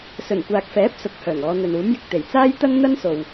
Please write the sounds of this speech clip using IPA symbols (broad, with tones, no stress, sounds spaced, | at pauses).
s ɵ˨˩ n kʷ aː˨ k̚ f ɛː˨˥ p̚ s ʊ˨˥ k̚ h œː˨˩ ŋ ɔː˨˧ n̪ ɵ˨ n uː˨˥ m j ɪ˨ k̚ t̪ e˨˩ j t͡s aː˥ j t̪ ɐ˥ ŋ n̪ ɐ˥ n s o˨ w